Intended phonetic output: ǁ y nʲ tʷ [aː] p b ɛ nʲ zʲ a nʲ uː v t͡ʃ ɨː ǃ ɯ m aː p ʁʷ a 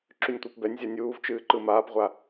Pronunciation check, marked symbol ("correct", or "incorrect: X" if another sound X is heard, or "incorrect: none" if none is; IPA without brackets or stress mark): incorrect: a